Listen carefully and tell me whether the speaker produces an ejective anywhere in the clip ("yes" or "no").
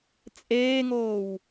yes